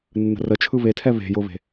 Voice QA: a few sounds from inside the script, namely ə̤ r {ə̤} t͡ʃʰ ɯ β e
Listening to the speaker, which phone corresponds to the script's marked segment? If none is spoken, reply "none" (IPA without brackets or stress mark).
ə